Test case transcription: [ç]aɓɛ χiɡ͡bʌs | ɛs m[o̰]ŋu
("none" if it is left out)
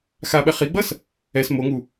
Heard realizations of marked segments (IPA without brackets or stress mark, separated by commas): x, o